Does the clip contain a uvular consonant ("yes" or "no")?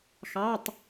no